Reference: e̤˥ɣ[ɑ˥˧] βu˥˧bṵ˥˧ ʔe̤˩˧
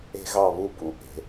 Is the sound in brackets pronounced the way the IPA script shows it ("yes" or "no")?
yes